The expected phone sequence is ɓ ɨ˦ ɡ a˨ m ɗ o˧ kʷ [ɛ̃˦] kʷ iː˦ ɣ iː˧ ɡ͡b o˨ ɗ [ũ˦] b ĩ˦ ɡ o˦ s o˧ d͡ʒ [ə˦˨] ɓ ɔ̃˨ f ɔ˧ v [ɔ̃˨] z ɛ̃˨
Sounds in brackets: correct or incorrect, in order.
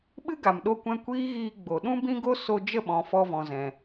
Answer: incorrect: ɛ̃˧, correct, correct, correct

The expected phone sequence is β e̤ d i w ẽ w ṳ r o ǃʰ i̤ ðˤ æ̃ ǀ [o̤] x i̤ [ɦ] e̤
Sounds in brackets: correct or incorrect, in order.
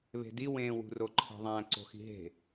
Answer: correct, correct

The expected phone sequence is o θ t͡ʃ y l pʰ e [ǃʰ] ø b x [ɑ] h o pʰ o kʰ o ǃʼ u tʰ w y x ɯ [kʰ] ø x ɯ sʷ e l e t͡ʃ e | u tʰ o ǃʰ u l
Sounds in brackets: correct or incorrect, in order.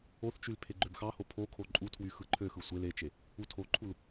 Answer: incorrect: ɡ͡ǃ, correct, incorrect: ǃʰ

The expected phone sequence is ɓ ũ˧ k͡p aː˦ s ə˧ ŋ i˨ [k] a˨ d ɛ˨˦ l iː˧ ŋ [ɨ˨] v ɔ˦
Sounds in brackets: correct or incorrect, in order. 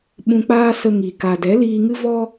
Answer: correct, incorrect: ɨ˦

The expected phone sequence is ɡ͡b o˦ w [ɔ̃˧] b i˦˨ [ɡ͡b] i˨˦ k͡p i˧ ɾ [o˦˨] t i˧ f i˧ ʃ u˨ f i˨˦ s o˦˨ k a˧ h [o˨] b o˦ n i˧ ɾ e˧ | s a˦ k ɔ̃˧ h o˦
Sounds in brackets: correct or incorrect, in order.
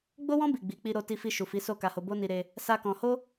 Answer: incorrect: ɔ̃˦, correct, incorrect: o˧, incorrect: o˧

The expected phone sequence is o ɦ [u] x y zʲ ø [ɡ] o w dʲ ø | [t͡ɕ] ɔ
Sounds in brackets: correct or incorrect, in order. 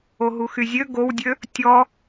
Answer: correct, correct, incorrect: tʲ

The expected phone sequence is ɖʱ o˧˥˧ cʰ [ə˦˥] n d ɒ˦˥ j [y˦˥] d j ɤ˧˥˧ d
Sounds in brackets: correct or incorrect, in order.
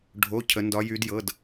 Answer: correct, correct

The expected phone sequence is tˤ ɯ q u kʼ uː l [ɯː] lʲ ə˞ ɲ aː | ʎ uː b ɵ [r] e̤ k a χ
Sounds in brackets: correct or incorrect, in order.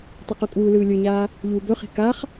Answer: correct, incorrect: χ

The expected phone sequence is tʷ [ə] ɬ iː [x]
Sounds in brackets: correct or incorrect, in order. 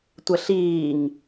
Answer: correct, incorrect: ŋ

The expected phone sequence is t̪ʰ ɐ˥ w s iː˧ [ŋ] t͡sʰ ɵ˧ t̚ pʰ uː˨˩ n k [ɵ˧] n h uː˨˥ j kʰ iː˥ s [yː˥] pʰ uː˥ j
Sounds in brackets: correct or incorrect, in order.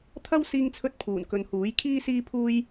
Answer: correct, incorrect: ɵ˨, incorrect: iː˥

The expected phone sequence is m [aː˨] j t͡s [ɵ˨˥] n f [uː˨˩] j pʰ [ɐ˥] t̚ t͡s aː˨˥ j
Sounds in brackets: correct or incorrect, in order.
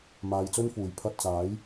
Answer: correct, incorrect: ɵ˥, correct, incorrect: ɐ˧

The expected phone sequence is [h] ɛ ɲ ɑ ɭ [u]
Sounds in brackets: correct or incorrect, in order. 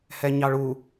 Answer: correct, correct

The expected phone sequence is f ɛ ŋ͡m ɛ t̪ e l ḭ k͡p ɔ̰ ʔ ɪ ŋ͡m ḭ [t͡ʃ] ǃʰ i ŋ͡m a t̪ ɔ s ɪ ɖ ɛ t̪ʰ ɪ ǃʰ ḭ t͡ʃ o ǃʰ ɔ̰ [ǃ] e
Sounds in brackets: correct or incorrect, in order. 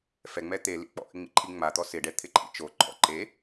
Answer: incorrect: none, correct

